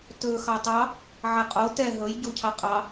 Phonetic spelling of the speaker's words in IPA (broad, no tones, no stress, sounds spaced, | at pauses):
t ɵ x ɑ tˤ ɑ | ʕ ɛ qʼ o t ɛ ɦ ɵ j ɟ o cʰ ɑ qʼ ɑ